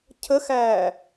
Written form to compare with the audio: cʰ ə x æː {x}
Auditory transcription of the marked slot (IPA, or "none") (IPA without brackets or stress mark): none